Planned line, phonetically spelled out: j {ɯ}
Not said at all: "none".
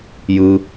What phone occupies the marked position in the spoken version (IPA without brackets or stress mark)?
ɯ